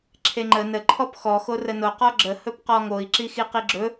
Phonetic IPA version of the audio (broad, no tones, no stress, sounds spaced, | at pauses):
ǁʰ e ŋ͡ǃ ə n ə ǃʰ ɔ p x ɔ x o r ə n o q ɔ ɡ͡ǁ ə h ɵ p q ɔ ŋ o i̯ ǁ i x i q i ɡ͡ǁ ɵ